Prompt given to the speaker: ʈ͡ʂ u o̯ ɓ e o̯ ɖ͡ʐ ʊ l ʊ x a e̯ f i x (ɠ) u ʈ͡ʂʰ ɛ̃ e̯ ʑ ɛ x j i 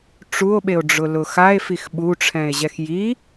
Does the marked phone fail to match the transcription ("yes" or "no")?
yes